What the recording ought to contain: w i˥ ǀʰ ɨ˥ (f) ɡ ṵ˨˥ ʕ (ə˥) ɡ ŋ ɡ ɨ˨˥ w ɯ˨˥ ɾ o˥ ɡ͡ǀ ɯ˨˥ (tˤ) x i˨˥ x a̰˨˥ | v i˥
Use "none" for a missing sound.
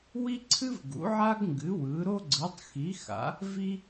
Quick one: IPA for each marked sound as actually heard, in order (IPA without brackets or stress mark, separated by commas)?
v, a˥, tˤ